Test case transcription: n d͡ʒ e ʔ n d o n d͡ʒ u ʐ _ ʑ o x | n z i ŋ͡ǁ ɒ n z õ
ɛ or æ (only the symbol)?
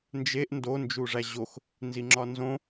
æ